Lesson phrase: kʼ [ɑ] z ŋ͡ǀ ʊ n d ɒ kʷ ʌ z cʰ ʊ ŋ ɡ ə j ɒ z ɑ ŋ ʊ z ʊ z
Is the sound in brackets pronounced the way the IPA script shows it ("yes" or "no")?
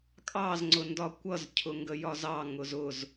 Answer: yes